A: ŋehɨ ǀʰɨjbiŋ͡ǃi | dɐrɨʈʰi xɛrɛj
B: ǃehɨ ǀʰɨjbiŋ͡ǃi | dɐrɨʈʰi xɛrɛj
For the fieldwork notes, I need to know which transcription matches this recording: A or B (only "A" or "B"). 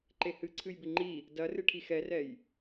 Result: B